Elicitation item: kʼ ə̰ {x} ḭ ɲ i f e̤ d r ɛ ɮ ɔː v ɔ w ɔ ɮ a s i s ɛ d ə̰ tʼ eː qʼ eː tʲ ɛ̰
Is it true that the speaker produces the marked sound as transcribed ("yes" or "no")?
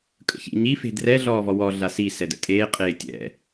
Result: no